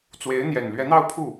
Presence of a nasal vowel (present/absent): absent